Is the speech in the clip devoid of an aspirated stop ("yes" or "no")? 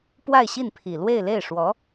no